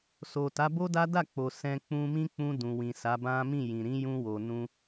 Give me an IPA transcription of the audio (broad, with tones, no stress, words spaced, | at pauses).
so˨ta˨˦bo˦da˦ da˦˨k͡po˨ sɛ̃˧ k͡pũ˧mĩ˦k͡pũ˧ dũ˨wĩ˨sa˨˦bã˦ mĩ˦˨jĩ˨ ɾĩ˨˦jũ˧ wo˨nũ˧